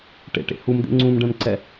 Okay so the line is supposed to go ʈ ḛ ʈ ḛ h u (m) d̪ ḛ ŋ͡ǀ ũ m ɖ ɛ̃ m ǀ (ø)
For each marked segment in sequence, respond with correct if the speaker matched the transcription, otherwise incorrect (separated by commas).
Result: correct, incorrect